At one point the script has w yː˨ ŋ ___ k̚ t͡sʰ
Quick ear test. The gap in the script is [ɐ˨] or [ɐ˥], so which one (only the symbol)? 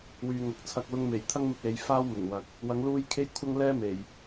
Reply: ɐ˨